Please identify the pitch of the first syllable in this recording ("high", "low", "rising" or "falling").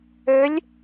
rising